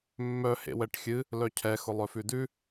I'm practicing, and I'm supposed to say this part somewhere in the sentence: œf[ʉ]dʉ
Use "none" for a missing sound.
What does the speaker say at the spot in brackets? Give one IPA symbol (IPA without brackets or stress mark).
ʉ